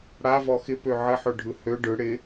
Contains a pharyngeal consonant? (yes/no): yes